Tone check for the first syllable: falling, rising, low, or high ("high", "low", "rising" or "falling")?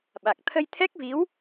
low